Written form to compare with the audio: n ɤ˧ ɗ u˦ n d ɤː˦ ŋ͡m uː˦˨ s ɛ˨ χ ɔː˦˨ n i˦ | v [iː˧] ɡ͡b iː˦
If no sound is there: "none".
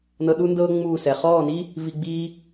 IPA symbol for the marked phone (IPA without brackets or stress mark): i˧